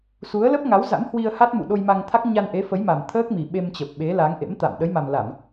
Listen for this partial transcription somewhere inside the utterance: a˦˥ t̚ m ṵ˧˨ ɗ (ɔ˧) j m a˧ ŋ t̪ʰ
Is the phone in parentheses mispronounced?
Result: yes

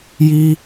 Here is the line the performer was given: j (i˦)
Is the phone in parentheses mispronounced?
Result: no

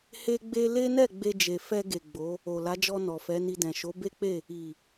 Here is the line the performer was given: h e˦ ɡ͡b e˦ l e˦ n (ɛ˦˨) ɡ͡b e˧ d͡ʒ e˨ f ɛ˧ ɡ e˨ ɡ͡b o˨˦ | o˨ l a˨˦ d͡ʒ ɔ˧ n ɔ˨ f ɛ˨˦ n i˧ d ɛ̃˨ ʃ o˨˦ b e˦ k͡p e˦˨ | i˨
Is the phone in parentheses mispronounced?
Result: no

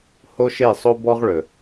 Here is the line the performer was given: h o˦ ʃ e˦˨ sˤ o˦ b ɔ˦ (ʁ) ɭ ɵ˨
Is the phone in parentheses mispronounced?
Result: no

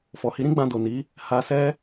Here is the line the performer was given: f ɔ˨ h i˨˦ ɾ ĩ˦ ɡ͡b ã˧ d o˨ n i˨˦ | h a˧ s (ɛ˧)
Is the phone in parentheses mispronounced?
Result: yes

